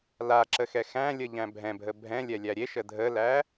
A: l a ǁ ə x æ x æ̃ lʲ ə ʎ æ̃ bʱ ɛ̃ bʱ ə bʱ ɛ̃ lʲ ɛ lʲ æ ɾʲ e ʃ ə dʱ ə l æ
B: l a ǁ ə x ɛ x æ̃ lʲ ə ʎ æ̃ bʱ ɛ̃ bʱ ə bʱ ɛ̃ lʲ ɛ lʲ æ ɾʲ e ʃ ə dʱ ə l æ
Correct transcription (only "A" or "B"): B